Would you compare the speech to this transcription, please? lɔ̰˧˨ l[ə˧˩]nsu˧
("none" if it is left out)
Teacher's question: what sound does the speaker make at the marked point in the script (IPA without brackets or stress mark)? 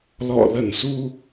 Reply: ə˧˩